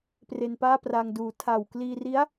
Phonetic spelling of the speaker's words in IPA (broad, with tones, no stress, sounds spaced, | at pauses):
p r e˧ n p aː˥˩ p r aː˧ ŋ d uː˩˦ tʰ a˨˩ w k l iː˧ r i˦˥ a̯